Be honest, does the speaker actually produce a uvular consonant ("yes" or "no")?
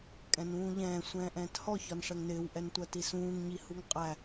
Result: yes